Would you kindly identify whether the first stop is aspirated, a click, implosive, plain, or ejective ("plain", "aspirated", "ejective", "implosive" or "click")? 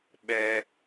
implosive